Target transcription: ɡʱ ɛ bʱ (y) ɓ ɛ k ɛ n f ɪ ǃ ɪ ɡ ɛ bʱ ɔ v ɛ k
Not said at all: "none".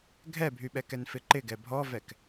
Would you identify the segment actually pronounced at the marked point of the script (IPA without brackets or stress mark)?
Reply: y